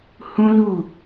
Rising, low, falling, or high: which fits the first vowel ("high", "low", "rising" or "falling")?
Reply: high